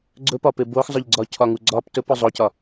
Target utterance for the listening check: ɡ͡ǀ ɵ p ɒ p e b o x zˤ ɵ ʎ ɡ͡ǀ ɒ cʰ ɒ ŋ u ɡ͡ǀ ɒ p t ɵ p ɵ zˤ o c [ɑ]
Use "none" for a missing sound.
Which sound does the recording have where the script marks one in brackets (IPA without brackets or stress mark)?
ɒ